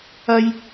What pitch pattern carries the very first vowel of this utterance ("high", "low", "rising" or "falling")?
high